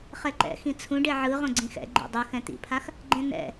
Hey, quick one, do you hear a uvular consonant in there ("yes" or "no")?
yes